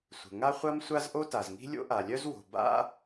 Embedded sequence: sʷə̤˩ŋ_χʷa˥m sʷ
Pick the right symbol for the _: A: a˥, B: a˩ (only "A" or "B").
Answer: A